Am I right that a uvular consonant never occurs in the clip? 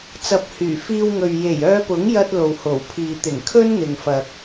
yes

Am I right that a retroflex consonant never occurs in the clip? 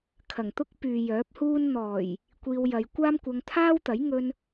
yes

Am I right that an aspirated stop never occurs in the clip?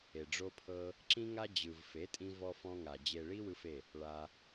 no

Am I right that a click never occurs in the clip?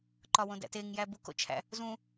no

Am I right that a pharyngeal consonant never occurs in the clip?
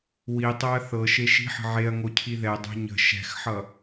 no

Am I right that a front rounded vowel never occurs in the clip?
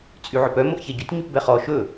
no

